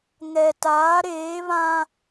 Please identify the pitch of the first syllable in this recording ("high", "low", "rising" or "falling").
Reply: low